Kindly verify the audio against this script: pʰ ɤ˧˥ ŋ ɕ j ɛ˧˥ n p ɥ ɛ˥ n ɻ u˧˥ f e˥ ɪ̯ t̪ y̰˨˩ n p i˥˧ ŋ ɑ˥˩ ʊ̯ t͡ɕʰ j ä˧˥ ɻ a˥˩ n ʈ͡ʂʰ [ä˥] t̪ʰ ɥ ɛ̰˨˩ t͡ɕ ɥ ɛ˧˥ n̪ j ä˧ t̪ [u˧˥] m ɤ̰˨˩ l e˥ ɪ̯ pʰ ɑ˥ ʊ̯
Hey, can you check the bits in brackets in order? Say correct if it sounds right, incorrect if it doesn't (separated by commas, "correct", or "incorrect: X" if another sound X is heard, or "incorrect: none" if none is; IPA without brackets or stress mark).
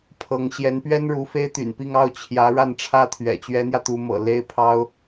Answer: correct, correct